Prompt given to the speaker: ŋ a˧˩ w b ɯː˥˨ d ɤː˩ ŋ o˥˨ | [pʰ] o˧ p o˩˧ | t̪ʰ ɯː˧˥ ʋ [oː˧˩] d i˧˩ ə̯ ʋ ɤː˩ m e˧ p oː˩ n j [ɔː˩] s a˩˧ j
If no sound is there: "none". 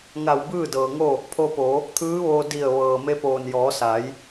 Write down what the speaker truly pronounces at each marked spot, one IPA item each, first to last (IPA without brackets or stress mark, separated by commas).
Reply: pʰ, oː˧, ɔː˩˧